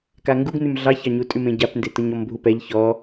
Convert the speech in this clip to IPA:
k a ŋ ɡ u ɡ n ʉ m ɮ ɑ ç ɑ ɲ u tʼ ʉ m ẽ ɟ a p n d e t ɤ ɲ ɔ m bʱ u p ɛ ʎ ç ɔ

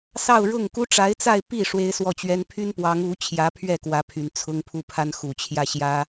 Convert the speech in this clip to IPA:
s ɑ˥˧ ʊ̯ ɻ ʊ˥˩ ŋ k u˥ ʈ͡ʂ a˧˥ ɪ̯ t͡s a˥˧ ɪ̯ p i˥˩ ʂ w e˥ ɪ̯ s w ɔ˥˩ t͡ɕ ɥ ɛ˥ n pʰ y˥ n p w ɑ˧˥ ŋ u˧˥ t͡ɕʰ j ä˧˥ pʰ ɥ ɛ˥˩ k w ä˧˥ pʰ y˨˩ n t͡sʰ ʊ˥ ŋ pʰ u˥˩ pʰ a˥ n x u˨˩ t͡ɕʰ j ä˥˩ ɕ j ä˥

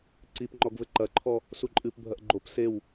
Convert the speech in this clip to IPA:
ǀ i p ŋ͡ǃ ɔ ɡ v ɘ ǃ ɐ ǃʰ ɔ | s u ǃʼ ɨ p bʱ ɐ ʔ ɡ͡ǃ o p s e w

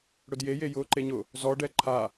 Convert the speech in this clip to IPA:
ɽ ʊ d j e j e j ʊː ǃ e ɲ ʊ | z ɔ ɖ ɛ ǃʰ a

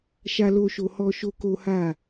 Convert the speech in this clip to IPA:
ʃ a˦ l o˦ ʃ o˧ h ɔ˦ ʃ o˦ k o˦ h a˦˨

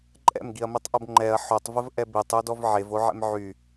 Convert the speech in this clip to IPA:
ǃʼ ɛ̰ m ɡ i ɐ̯ m i tˤ ʔ o b ŋ͡ǃ ɛ ɐ̯ ħ o tˤ v ə v ʔ ɛ b i tˤ u d ɔ v ʕ e v o ʕ ɛ̰ m ʕ y

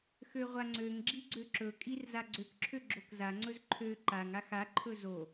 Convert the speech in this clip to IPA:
x ø ʁʷ a ŋ͡ǀ ø ŋ ɡ͡ǁ i ɡ͡ǀ ø ǁ ɵ kʼ i r z a ɡ͡ǀ ø k ǁʰ ø ɡ͡ǁ o k z a ŋ͡ǀ ɵ z ǃʰ ø ǃ a ŋ a x a ǃʰ ɵ z o

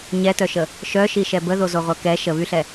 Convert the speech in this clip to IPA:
ɲ ɛ t œ ʃ ə | ʃ œ ʃ i ʃ ɛ b ə ð o z o ʁʷ œ k ɛ ʃ ə β y ɬ ɛ

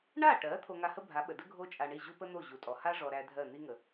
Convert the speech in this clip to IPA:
ɳ a˥˩ ʈ ɜ˩˥ t̪ʰ o˧ ŋ a˧ h ə˥ bʱ a˩˥ ɓ ə˩ d ə˥ ɡʱ o˥ t͡ʃʼ a˧ ɳ i˥˩ ʑ u˥ p ə˥ n̪ o˥˩ ʑ u˩ tʼ ɔ˩ h a˥ ʐ ɔ˧ ɾ æ˧ dʱ ɜ˥˩ n̪ i˥ ŋ ə˩

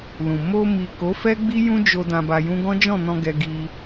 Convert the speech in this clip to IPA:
l ũ˨ m o˧ m i˨ k o˨˦ f ɛ˦ ɡ͡b i˦ j ũ˦ d͡ʒ o˧ d ã˧ b a˧ j ũ˦ ɡ ɔ̃˦ d͡ʒ ɔ̃˦˨ n ɔ̃˧ ɡ ɛ˧ ɡ i˧

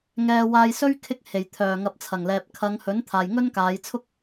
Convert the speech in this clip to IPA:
ŋ ɛː˧ w aː˧ j s ɵ˥ ɥ kʰ ɪ˧ k̚ h e˨˩ j t̪ʰ œː˨˩ ŋ ɐ˨˥ p̚ t͡sʰ ɐ˨˩ ŋ l ɛː˨ p̚ kʰ ɐ˨˧ ŋ h ɵ˨˥ n t̪ʰ aː˨ j ŋ ɵ˥ n k aː˨˧ j t͡sʰ ʊ˥ k̚

